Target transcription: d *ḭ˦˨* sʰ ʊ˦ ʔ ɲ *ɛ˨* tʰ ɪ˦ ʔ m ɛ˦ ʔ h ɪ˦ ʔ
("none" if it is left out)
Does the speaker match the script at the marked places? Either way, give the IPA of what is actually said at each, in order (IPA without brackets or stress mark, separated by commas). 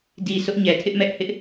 i˨, ɛ˨